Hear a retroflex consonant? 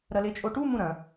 yes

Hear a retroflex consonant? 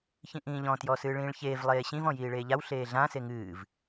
yes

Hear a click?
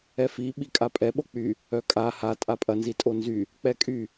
no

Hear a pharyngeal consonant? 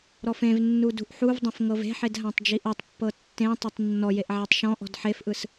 yes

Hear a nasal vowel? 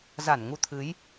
no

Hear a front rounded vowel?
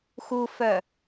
yes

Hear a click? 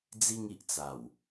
no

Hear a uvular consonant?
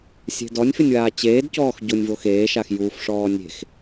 no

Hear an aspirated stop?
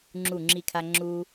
yes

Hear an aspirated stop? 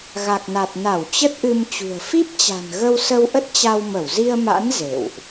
no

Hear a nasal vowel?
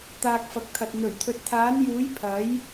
no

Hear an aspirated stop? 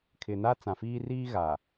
yes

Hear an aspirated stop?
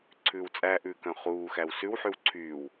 yes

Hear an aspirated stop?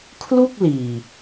yes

